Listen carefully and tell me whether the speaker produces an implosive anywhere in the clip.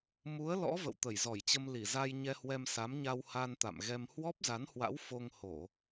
no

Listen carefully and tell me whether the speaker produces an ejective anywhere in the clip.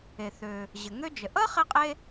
yes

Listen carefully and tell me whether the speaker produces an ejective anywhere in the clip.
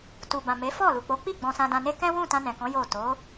no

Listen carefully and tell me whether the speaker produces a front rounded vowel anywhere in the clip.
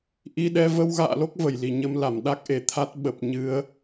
no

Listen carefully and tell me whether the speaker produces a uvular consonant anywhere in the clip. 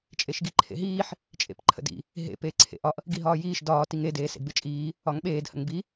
no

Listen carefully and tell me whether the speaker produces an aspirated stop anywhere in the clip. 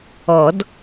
no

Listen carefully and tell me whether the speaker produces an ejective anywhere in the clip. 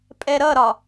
yes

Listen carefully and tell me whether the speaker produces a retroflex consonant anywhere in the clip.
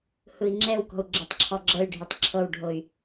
yes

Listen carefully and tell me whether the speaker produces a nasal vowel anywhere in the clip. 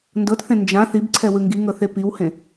yes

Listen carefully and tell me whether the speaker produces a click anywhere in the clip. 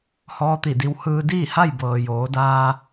no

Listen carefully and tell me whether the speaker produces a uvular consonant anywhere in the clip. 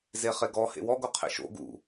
yes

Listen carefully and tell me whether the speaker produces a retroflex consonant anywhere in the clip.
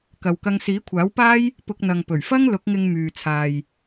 no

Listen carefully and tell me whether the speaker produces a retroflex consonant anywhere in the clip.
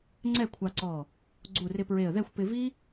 no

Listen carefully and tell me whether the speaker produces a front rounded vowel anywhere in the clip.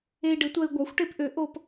yes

